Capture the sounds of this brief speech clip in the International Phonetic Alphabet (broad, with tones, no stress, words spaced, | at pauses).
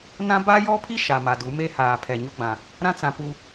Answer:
nã˦ ba˦jɔ˦pʰi˦ ʃa˨ma˨du˨˦ me˦haː˨ pʰɛ˨ɲʊ˦ɡ͡bã˨ | ɾã˦t͡sã˨ pu˦